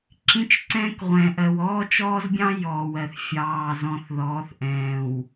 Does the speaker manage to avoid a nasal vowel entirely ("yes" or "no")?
no